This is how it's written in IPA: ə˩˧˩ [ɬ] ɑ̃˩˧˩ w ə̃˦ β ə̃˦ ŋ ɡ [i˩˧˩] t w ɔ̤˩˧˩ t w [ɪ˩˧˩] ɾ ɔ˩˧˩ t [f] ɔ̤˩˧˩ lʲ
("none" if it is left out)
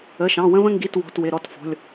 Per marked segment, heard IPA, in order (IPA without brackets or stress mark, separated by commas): ʃ, i˩˧˩, ɪ˩˧˩, f